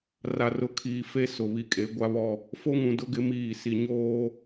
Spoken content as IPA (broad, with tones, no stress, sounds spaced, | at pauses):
r a˨ r ʊ˨ kʰ iː˨ f e˦ s ʊ˨ β i˨ kʼ e˨˦ ɡʷ a˦ β ɔ˦ | f o˦ ŋ ũ˨ d ʊ˦ ɡ ɪ˨˦ m iː˦˨ s i˦ ɲ oː˦